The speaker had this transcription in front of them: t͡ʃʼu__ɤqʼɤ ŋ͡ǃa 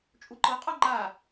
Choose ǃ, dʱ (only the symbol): ǃ